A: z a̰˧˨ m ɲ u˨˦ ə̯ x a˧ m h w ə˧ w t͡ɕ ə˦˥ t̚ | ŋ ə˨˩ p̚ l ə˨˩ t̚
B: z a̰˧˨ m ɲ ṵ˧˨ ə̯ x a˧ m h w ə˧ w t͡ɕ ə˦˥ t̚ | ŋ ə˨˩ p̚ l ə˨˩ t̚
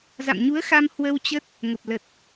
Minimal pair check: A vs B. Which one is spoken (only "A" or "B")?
A